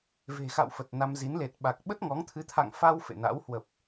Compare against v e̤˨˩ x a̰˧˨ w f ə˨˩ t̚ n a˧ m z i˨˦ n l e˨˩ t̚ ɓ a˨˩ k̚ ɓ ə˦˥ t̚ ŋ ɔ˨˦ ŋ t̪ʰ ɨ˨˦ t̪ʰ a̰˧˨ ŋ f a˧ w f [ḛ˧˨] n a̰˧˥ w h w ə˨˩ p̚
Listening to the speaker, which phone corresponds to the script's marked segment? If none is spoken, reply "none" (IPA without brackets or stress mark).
ḛ˧˨